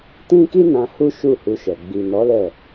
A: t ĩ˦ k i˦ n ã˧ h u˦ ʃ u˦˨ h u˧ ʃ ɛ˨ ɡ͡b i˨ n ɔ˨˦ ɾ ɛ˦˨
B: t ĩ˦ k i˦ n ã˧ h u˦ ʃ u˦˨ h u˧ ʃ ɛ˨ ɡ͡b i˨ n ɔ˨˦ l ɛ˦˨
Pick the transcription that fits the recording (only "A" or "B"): B